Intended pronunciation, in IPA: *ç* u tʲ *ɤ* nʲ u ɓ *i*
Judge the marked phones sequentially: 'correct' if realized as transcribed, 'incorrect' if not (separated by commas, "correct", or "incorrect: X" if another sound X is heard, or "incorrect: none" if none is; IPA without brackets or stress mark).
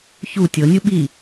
correct, correct, correct